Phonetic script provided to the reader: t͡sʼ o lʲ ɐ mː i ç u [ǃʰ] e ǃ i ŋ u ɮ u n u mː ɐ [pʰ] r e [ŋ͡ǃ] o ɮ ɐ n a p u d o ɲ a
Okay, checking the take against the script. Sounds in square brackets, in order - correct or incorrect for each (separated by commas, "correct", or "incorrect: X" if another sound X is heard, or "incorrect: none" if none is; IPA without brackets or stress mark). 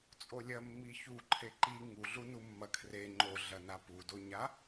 correct, incorrect: kʰ, correct